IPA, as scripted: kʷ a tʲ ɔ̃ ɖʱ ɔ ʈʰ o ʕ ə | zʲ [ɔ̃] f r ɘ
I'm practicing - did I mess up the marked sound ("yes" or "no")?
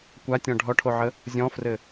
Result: no